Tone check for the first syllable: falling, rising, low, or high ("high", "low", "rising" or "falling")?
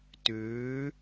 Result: rising